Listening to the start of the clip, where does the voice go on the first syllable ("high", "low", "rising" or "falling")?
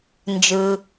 low